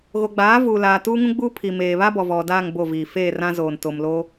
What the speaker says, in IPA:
ɣ o˨ ɡ͡b aː˨˦ v uː˨ l aː˨ t uː˦ ŋ ũ˦ ɡ͡b uː˦ pʰ i˨ m eː˨ β a˦ b ɔ˨ v ɔ˨ d aː˦˨ ŋ b o˦˨ v iː˨ f eː˦˨ r ã˦ z oː˨ n t o˨ m l o˦

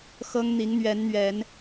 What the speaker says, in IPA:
x ɤ˦ ŋ n̪ i˨˦ ŋ n̪ ɥ ɛ˨˦ n n̪ ɥ ɛ˨˦ n

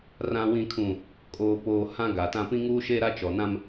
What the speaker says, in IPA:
r ã˨ w ĩ˨ kʰ ũ˨ | kʼ oː˨ p oː˨ h ã˦ ɡ a˨ t ã˦ p ĩ˦ ŋ uː˦ ʃ e˦ ɾ a˦ t͡ʃ ɔ˨ n ã˦ m

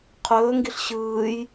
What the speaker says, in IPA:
qʰ ɵː ŋ ɡ i ɬ ɕ ɯː j

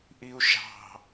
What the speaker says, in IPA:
ʔ i u̯ ʃ ɑ̤

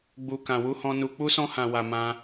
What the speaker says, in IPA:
ɡ͡b u˧ k ã˧ w u˦ h ɔ̃˦ n u˧ k͡p u˦ s ɔ̃˦ h ã˧ w a˧ m ã˦

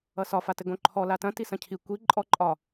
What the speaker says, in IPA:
ʌ s ɒ f a t ɘ ɡ õ ǃʰ ɔ l a t ɐ̃ t i s ɐ̃ cʰ i kʷ i ǃʼ ɔ ǃʼ ɒ

